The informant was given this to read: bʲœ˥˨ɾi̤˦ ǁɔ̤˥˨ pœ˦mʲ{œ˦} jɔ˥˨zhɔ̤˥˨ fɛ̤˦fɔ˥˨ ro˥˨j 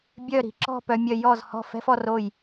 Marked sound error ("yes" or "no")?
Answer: no